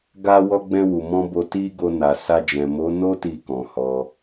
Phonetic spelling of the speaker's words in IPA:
ɡ a˧ w ɔ˧ ɡ͡b ɛ̃˧ w u˨ m ɔ̃˧ b o˧ t i˦ ɡ o˧ n a˨ s a˧ d͡ʒ ɛ̃˨ m o˨˦ n o˦ t i˧ k ɔ̃˨ h ɔ˧

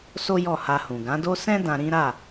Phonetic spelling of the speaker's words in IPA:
s o˦ j ɔ˦˨ h a˧ h ũ˨ ɡ ã˨˦ d o˦ s ɛ̃˦ d ã˧ ɾ ĩ˦ ɾ a˦˨

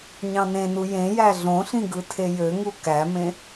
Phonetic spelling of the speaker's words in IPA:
ɲ ɑ̃ n ẽ n u j ẽ j æ ɮ õ ɬ ĩ ɡ ɯ tʰ e j ø ŋ u k æ m ẽ

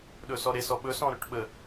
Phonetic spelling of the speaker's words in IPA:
ɗ ɵ s ɔ ɾ e s ɔ ɓ ɵ s ɔ̃ ɾ ɵ ʈ ɓ ə

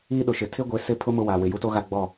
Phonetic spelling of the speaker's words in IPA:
iː˦ ɗ ʊ˨ ʃ ɪ˨ tʰ ɪ˦ ɡʷ e˨˦ s ɪ˦˨ pʰ ʊ˦ m ʊ˦ w a˨ w ɪ˨ j u˦ t o˦ ɣ a˦ ɡ͡b ɔ˦˨

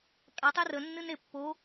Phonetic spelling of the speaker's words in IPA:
kʼ a tˤ e r ə nː ɨ n e pː o

